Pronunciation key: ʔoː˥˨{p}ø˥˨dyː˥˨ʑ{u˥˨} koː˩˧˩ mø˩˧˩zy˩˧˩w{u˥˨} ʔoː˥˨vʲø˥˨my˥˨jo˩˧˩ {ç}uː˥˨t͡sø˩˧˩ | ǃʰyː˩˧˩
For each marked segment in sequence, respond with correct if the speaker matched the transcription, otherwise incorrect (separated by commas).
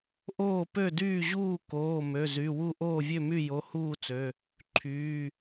correct, incorrect, correct, incorrect